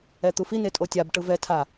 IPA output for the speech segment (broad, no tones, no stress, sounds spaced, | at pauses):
ɛ t̪ u f i n e tʼ o tʲ a b ʈ ɯ v ɛ tʰ a